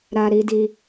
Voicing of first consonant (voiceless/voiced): voiced